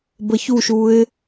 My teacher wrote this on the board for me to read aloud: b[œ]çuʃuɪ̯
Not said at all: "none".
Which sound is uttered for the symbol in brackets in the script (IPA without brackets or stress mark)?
ə